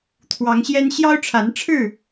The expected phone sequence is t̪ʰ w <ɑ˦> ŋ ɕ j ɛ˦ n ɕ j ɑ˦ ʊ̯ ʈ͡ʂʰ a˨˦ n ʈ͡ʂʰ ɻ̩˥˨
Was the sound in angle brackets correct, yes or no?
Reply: no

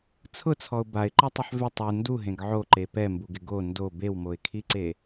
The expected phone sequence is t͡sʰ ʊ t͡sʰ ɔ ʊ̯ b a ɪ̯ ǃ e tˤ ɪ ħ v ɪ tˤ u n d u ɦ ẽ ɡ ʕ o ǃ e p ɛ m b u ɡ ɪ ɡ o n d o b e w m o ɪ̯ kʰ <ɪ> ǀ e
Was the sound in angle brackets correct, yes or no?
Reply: no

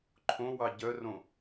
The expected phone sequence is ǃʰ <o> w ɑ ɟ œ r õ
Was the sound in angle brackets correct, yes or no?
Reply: no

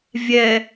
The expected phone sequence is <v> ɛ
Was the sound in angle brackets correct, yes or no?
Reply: no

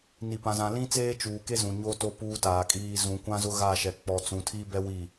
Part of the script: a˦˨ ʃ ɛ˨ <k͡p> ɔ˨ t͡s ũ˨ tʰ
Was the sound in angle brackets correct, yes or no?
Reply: yes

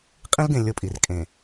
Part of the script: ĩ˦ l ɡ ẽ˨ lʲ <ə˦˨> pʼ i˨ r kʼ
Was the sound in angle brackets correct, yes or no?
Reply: no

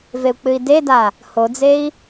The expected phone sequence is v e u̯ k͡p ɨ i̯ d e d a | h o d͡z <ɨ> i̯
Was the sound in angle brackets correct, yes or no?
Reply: no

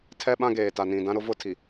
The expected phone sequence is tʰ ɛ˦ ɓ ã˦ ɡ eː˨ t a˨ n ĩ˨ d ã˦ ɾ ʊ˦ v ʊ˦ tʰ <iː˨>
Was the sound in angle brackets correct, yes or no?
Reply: no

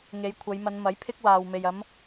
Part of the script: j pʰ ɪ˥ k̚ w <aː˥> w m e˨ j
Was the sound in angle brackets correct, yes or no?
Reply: no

